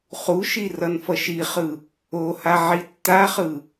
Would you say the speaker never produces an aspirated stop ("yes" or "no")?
yes